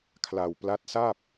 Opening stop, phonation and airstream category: aspirated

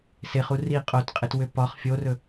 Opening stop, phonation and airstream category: ejective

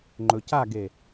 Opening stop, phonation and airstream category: click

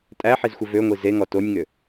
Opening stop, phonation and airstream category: ejective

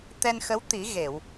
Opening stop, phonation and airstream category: plain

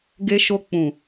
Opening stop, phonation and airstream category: plain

